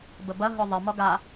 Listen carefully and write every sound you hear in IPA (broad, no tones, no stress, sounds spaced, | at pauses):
b ə b ɐ ɦ ʊ ðˤ ɪ m ɔ ɡ a